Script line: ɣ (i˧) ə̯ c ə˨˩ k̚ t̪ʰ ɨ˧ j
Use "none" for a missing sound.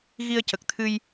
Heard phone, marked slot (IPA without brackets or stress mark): i˧